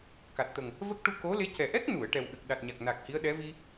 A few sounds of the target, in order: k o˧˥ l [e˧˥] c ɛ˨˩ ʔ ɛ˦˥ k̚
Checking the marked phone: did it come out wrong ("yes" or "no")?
no